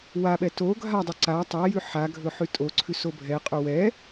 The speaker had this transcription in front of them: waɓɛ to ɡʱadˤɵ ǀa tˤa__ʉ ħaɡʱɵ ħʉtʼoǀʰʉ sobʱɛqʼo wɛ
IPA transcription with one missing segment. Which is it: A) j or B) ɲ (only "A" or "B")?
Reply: A